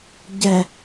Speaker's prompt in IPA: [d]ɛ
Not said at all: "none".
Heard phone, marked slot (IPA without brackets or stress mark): ɟ